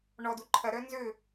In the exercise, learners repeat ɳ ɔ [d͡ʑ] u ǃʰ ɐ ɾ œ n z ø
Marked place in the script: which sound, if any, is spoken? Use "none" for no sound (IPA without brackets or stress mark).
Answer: d